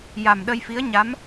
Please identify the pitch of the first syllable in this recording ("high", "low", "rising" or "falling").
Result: low